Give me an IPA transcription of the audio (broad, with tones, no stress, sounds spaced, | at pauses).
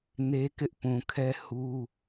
n e˦ k ɪ˦ ʔ p ũ˨ kʰ ɛ˦ h u˦